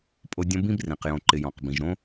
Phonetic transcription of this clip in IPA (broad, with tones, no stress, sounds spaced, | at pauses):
pʼ o˦ dʲ õ˥ b ĩ˥ b r ĩ˩ q j õ˨ ǃ ɪ˨ j ɔ̃˩ q b ĩ˩ ʒ ɾ õ˥